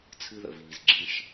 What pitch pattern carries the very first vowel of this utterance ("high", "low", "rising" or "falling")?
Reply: high